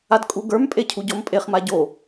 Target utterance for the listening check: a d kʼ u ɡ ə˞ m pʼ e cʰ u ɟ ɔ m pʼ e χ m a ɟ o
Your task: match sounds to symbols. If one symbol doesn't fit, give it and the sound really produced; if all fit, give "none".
none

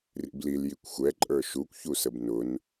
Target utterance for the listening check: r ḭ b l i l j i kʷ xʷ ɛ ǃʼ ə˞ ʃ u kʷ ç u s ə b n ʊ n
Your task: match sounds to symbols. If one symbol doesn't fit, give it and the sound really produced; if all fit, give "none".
none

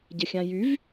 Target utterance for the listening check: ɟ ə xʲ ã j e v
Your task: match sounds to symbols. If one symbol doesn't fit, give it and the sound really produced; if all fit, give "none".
e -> y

